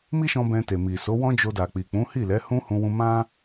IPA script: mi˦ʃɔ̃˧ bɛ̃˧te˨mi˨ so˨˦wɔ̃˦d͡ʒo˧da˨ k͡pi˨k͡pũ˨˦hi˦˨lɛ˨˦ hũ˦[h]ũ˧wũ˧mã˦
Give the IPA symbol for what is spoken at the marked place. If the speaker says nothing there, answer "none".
h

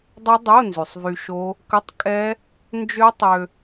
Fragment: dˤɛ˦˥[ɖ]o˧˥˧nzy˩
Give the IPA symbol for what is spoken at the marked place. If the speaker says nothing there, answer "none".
dˤ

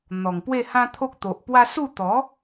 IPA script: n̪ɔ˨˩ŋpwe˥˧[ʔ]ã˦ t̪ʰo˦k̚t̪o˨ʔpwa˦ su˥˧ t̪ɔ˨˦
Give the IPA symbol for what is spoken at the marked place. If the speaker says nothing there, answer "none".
h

